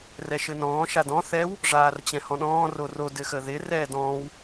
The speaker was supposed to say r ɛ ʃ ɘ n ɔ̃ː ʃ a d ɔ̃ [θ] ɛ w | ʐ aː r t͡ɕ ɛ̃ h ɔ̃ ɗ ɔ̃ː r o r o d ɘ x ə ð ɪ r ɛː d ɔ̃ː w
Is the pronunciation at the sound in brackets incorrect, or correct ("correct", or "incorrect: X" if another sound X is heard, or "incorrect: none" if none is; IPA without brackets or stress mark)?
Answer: correct